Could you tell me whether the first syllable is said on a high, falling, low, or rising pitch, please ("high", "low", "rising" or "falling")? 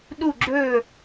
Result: falling